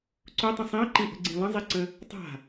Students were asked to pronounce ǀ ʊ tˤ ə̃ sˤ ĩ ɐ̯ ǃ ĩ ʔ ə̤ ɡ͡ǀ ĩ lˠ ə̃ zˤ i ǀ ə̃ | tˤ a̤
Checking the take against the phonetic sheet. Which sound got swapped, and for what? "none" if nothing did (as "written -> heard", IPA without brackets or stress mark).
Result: none